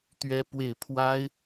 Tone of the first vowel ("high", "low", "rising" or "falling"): high